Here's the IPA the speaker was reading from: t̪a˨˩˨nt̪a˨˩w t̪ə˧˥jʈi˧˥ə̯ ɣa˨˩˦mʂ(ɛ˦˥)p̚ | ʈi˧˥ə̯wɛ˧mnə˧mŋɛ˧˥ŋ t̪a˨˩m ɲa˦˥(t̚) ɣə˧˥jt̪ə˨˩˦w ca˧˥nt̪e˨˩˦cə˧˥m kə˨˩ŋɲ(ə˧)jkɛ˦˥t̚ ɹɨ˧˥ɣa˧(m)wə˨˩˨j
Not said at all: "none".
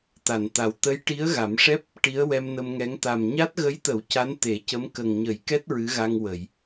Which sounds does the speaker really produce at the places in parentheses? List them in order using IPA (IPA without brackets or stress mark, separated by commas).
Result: ɛ˦˥, t̚, ə˨˩˦, ŋ